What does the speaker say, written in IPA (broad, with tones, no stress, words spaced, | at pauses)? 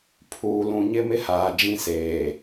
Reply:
pʰuː˨ lũ˨ɲɪ˦ mɪ˦haː˨d͡ʒĩ˦seː˨